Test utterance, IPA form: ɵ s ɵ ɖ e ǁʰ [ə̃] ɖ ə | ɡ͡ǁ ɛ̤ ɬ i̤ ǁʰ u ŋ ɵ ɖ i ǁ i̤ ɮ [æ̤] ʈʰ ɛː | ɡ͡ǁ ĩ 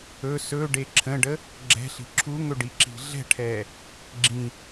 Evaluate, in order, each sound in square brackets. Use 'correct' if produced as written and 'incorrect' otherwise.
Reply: correct, incorrect: ɛ̤

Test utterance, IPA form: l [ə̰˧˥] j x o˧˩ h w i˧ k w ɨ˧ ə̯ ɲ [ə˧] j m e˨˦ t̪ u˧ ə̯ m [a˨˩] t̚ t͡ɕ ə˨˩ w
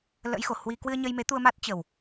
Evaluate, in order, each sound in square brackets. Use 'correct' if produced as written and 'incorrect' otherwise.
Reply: correct, correct, incorrect: a˦˥

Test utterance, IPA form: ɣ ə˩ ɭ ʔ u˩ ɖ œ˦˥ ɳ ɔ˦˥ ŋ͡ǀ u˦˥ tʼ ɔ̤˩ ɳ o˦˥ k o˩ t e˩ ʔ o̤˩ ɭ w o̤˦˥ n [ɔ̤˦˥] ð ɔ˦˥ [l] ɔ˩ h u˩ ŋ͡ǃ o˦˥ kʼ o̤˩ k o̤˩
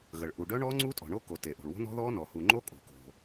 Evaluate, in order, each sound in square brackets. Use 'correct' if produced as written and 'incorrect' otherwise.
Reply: correct, incorrect: n

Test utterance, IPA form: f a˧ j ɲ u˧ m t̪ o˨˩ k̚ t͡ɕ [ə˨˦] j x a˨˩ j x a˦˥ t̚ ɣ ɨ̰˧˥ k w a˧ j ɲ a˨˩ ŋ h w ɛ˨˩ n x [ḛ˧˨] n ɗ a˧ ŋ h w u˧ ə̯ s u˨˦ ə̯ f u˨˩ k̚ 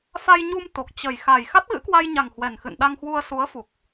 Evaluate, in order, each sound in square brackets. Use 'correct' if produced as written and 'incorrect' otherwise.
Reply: incorrect: ə˨˩, incorrect: ɨ̰˧˨

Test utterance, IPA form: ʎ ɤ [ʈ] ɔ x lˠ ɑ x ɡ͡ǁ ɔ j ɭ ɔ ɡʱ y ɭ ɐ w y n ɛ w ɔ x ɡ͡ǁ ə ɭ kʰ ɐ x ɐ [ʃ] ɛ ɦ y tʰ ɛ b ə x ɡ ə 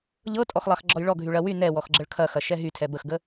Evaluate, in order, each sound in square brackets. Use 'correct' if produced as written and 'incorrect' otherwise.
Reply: incorrect: tʼ, correct

